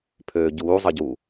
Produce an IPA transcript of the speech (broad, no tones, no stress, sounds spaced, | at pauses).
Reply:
pʰ øː ɟ uː zˤ ə ɟ u